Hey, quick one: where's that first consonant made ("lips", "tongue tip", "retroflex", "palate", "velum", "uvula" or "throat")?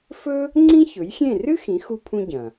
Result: lips